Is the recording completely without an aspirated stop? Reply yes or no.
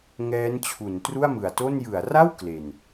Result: no